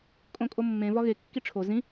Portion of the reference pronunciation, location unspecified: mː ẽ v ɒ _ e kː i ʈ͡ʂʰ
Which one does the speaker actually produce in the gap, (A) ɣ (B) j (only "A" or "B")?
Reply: A